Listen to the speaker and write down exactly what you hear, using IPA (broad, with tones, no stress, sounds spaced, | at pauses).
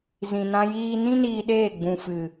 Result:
z ĩ˨ n ã˧ j iː˧ n ĩ˦ n iː˧ ɗ eː˦˨ ɡ͡b ũ˨ f ɨ˨